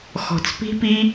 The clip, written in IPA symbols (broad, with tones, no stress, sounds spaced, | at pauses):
x ɔ̤˨ t͡s p i̤˦ p i˦